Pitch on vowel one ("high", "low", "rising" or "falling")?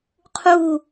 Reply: falling